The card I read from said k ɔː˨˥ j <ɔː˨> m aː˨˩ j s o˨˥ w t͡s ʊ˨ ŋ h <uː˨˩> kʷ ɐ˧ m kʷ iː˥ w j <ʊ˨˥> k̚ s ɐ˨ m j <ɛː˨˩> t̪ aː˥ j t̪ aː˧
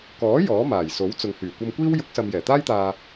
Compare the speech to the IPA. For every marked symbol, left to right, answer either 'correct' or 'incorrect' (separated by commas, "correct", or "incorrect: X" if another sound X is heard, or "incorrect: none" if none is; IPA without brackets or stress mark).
incorrect: ɔː˨˥, incorrect: yː˨˩, correct, correct